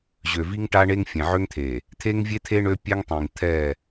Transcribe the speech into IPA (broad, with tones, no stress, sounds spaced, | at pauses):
ʑ ø˨ v i˦ ŋ ʈ a˦ ɳ e˦ ŋ fʲ ẽ˨ ʕ ø˦ ŋ t̪ʰ e˨ | t̪ʰ e˦ ŋ vʲ e˦ t̪ʰ e˦ ɳ ø˦ pʲ ɛ˦ ŋ tˤ ĩ˨ ŋ t̪ʰ ɛ˦˨